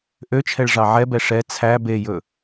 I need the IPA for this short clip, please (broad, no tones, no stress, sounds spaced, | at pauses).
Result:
ʔ ø t͡ʃʰ ɛ ɭ ʐ ɑ ʕ ɛ b ɛ ʂ ɛ t͡sʰ æ b e j ɵ